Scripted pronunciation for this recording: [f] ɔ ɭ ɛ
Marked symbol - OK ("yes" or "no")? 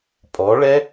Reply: no